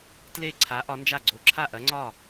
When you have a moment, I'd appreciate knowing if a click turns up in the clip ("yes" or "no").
yes